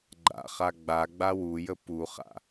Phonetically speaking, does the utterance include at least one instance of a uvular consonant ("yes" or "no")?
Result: yes